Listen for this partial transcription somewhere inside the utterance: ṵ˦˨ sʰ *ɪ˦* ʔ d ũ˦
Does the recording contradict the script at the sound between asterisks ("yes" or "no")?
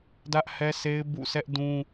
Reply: yes